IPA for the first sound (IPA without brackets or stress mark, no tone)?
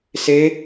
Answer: s